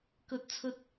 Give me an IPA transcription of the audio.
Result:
k ɵ˧ t̚ t͡sʰ ɵ˧ t̚

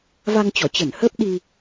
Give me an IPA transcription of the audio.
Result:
v a˧ ŋ t͡ɕ ɔ˧˩ t͡ɕ ə˧˩ n h əː˦˥ p̚ ɗ i˧

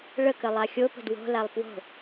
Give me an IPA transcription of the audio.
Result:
ɭ ə k ə lˠ a xʲ o p ə̤ d w o̤ l a lˠ p w o̤

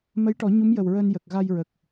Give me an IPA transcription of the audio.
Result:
m ə˧˥ j ʈ ɔ˨˩˦ ɲ u˧˥ m j ə˨˩ w ɹ əː˧ n j ə˨˩ k̚ ɣ a˧ j ɹ ə˨˩ k̚

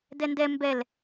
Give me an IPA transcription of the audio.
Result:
d ɛ n d ɛ m b ɛ l

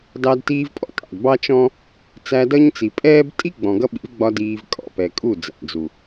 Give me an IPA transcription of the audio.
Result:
d ɑ˧ d t iː˧ v pʼ ɔ̰˦ tʼ ɑ̰˨ d b ɑ˦ t͡ʃ ɔ̃˦ | t͡s æ˧ d ʌ˦ ɲ t͡s i˨ pʼ ɛː˦ b tʼ i˦ ɡ͡b ɔ̃˨ ɡ ʌ˦ ɓ ḭ˨˦ v ɡ͡b ɒ˧ d iː˧ v kʼ ɔ̰˨ p ɛ˨ kʼ u˦˨ d͡z æ̰˨ d͡z u˨

